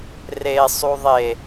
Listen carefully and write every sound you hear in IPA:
r e sˤ u ðˤ e

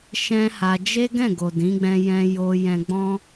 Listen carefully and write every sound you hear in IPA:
ʃ ɛ̃˦ h a˧ d͡ʒ e˦ ɡ ɛ̃˦˨ ɡ o˨ d ĩ˨˦ ɡ͡b ɛ̃˧ j ɛ̃˧ j o˧ j ɛ̃˧ ɡ͡b ɔ̃˦

